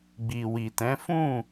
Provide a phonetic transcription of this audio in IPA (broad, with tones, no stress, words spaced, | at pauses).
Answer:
ɡ͡bi˨wi˨tɛ̃˨˦ fũ˦˨